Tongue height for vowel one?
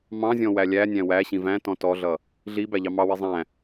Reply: low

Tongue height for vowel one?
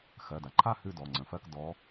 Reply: mid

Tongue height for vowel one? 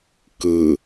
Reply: high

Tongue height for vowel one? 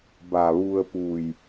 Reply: low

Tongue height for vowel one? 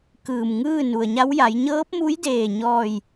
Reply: high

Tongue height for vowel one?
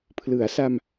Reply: high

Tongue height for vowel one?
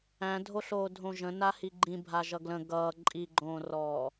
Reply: low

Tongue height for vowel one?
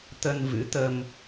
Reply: mid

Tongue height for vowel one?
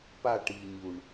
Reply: low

